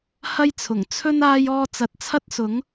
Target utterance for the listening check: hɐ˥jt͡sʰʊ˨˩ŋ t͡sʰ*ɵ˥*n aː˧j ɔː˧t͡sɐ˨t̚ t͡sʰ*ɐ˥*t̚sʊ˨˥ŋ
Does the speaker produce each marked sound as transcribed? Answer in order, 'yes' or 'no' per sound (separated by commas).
yes, yes